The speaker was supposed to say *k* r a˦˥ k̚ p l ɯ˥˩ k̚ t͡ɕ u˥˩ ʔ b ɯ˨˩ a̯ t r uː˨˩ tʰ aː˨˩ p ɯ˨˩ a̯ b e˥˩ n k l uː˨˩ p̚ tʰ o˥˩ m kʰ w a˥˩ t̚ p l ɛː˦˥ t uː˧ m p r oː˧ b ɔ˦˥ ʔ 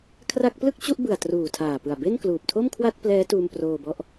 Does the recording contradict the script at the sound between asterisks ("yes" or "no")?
yes